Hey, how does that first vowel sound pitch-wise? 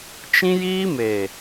high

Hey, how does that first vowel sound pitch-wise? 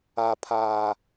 low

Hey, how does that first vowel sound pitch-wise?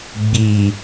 low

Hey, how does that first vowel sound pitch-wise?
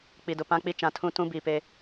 low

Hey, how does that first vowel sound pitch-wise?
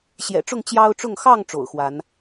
low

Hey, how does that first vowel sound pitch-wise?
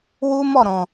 high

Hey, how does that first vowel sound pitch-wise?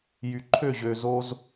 low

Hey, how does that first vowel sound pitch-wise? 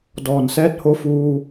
low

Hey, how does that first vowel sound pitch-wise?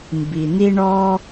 low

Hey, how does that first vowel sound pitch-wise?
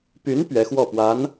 rising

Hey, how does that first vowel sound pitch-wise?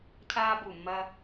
high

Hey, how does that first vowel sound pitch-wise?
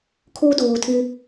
high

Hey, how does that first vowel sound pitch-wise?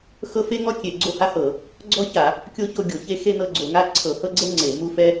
high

